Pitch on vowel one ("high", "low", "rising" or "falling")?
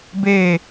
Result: low